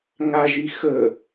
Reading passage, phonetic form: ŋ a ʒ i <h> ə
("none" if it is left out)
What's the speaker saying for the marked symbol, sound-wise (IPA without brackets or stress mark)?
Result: x